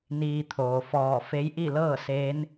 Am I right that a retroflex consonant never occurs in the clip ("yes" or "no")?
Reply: yes